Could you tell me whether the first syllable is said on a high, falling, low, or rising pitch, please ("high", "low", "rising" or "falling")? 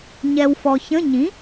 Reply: low